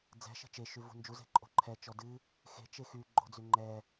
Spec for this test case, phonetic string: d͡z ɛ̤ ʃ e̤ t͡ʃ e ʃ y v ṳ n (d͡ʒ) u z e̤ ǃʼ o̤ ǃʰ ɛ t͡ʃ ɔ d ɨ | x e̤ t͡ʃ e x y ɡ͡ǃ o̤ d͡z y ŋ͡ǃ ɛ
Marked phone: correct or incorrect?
correct